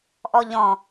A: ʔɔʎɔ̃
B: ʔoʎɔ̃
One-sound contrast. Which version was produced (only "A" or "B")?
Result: A